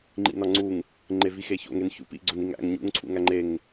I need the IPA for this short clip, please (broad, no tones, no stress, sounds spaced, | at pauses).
ŋ͡ǃ ḭ n ɒ ŋ͡ǀ u ŋ | ŋ͡ǃ e v i x e ç o̰ ŋ e n ç ṵ p ḭ ɡ͡ǀ o n i ŋ æ̰ ŋ ɲ ṵ ŋ ǀʰ ṵ ŋ æ ŋ͡ǃ e ŋ